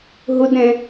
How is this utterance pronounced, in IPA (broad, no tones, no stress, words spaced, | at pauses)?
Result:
ɦʊdɾɛ̃